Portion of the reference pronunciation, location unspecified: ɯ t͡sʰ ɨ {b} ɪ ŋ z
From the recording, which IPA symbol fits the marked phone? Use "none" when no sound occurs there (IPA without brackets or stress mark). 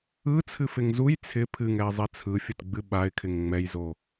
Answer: f